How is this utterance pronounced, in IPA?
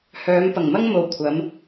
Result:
hœː˨˧mpɐ˨˩ŋmɐ˥ŋmo˨w kʷʰɐ˨˧m

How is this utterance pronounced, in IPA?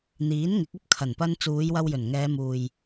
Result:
n̪iː˨˥nŋɪ˨˥k̚ɐ˥p̚ kʰɐ˨˩npɐ˧n t͡suː˨˧jwɐ˧w jɵ˨˩nŋɛː˨˧muː˨j

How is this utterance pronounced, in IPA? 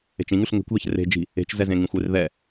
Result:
e̤t͡ʃĩŋʉɬ ŋe̤kʷðɛç re̤ d͡ʒi̤ | e̤t͡ʃzɛzẽŋĩxʷ erðɛ

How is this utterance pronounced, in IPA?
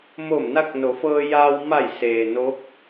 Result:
mo˧˩mna˧k̚no˩˧ fɤː˧jaː˧w ma˧˩jseː˩ no˧˥k̚

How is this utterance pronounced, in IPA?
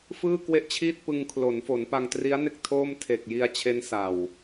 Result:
fɯː˥˩kwe˥˩ʔt͡ɕʰiː˥˩t̚ pɯ˧ŋkʰlo˩˦nfo˩˦n pa˧ŋtri˦˥a̯ne˥˩k̚ tʰoː˥˩m tʰe˨˩k̚ji˧a̯t͡ɕʰe˦˥n sa˨˩w

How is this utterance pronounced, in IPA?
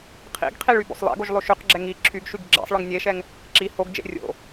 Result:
qʰḭɡqʰiɭ ybo̰sˤlˠḛɡoʒ lˠoʃyqɡ͡ǁɛ ŋi ǁʰyɡʃyɡ ɡ͡ǁḛsˤɭɯŋ nʲeʃɛŋ | ǁi hoɡd͡ʒḛ rʲo̰

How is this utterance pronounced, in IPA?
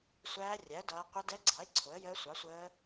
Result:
sʷæː˦˥rʲæ˨˥ə̯ dʌː˦˥ qʷɛ˦˥dɛ˦˥ ɡ͡ǀɑ˨˥ɪ̯ ǀʰʊ˨˥ə̯jəː˦˥ sʷɑ˨˥sʷəː˦˥

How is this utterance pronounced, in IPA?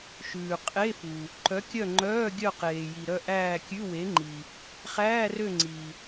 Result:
ʃʉː˩qʼe˧˥˧fu˩ | ǃœ˨˥kʲœ˦˨ŋ͡ǃœː˧˥˧ ɡʲœ˦˨qeː˩ji˩ ɾœ˦˨ʔæː˦˨kʲʉ˧˥˧we˨˥ ŋ͡ǃi˩ | χæː˧˥˧rø˦˨ ŋ͡ǀi˩

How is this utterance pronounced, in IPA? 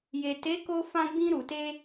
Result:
je˨ te˨˦ko˧fã˧ ɡ͡bĩ˧ɾu˨te˧

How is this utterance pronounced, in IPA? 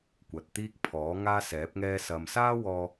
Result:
kʷɐ˨t̚ t̪iː˧k̚ pʰɔː˨˥ ŋaː˥sɛː˨˥p̚ŋɛː˥sɐ˧m saː˥ wɔː˥

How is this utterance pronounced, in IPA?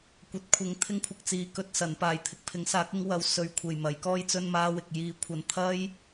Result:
kʷɐ˨˥t̚kʷʰɪ˨˥ŋ t̪ʰɪ˥ŋ kʷʰɪ˨k̚t͡siː˨˧ kɵ˨˥t̚sɐ˨˥npaː˨jt̪ʰɪ˧k̚ pʰɪ˨˥ŋsaː˨˥k̚ɪ˨˥ŋ wɐ˨˧wsɵ˨ɥkʷʰe˨˩j mɐ˨˥jkɔː˥j t͡sɵ˧nmaː˧ wɪ˨k̚jiː˧kʷʰɐ˧n t̪ʰɐ˥j

